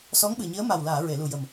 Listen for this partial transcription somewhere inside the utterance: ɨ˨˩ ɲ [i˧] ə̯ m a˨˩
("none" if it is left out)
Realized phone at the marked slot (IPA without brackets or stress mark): i˧˥